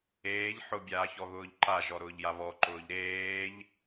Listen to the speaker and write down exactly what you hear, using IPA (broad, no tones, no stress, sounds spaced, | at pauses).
eː ʎ ħ ʊ bʲ aː ç ɔ ɣ ʊː ʎ ǃ a ʒ ɔ ɾ ʊː ʎ j a β ɔ ǃ ʊː ʎ ɾ eː ʎ